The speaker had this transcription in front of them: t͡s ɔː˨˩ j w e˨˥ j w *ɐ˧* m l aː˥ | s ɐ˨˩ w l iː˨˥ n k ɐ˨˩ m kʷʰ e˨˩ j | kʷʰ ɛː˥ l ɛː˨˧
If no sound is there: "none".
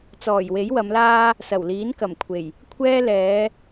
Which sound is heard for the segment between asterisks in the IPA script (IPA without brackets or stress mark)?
ɐ˨˧